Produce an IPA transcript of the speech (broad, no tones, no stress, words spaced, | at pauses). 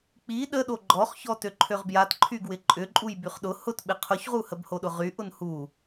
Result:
k͡pi ɗəɗo ɡ͡ǃɔχ çɔtøǃʰøʁbjat ǃʰyɡwɪǃʼʏǃʼuj byχɗʊ hʊtɓɪ qʰʊçʁuhəb hoɗʊʁy ʔʊnhu